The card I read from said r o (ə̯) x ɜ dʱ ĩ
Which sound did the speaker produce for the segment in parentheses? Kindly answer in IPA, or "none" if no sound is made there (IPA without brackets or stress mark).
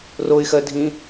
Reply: ɪ̯